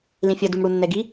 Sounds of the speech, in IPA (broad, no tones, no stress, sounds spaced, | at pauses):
l ĩ fʲ ʌ d u m ɽ u nː ɛ ɡ i